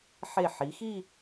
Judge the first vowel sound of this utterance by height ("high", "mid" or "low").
mid